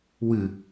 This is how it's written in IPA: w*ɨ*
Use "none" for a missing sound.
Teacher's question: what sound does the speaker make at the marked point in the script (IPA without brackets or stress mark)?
ɨ